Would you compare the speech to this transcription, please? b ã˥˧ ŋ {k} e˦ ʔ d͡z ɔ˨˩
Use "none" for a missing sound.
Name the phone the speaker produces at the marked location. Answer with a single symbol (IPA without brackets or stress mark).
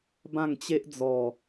t͡ɕ